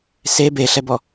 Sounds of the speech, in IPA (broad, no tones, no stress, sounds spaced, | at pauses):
s e b e ɬ ɛ b ɔ